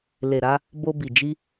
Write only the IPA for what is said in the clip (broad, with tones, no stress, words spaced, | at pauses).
le˨ɾa˧ | bo˧bi˨ d͡ʒi˧